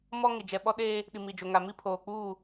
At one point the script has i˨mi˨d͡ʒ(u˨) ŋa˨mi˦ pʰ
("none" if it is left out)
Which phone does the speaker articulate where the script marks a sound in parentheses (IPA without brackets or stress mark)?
o˨